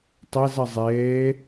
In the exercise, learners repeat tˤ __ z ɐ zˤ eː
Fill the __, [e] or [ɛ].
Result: ɛ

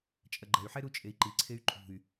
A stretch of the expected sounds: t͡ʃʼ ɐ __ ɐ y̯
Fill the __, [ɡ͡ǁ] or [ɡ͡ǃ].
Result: ɡ͡ǃ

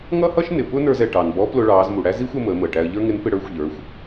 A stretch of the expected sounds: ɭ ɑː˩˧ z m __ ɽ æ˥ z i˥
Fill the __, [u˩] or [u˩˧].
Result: u˩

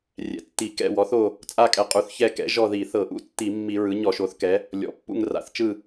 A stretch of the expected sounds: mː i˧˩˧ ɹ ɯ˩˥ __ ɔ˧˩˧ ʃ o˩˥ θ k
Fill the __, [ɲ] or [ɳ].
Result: ɲ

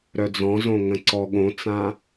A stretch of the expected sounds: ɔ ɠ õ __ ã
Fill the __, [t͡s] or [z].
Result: t͡s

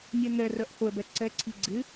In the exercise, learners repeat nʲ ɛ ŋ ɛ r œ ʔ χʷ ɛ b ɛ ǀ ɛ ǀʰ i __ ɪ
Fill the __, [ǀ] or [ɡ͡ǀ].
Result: ɡ͡ǀ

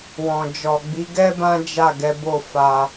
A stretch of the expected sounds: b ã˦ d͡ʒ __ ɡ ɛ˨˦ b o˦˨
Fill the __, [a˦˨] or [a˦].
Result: a˦˨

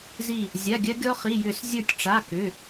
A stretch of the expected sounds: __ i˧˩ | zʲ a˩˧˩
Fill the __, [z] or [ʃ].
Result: z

